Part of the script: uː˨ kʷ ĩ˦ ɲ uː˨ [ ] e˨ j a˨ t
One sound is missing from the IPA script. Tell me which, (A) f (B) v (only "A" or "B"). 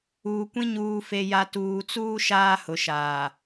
A